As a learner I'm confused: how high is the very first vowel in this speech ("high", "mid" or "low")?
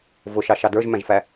high